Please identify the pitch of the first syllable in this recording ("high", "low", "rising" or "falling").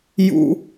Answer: high